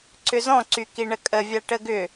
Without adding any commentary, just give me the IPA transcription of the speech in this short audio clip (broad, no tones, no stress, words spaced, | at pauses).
ǀʏzɔ̃ǀy kiɳəkʼəvʲa ʈəɡʏ